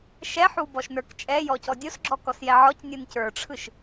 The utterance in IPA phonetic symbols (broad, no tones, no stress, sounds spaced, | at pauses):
ʃ ɛ ħ u b ɔ ʃ n ə˞ k t͡ʃʼ ɛ j ɔ c ɔ dʲ o s ɡ͡ǁ ɔ k ɔ s j ɛ ʕ ɔ c nʲ ɯ n c ə˞ ʈ͡ʂʰ ɯ ʃ